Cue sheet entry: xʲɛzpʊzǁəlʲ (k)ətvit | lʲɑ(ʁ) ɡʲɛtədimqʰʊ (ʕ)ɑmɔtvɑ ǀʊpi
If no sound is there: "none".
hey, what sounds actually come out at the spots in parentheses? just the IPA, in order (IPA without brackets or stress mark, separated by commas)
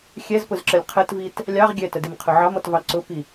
qʰ, ʁ, ʕ